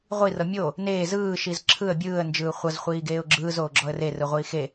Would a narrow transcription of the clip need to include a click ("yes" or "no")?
yes